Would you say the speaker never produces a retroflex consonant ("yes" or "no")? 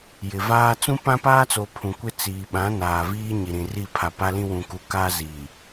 yes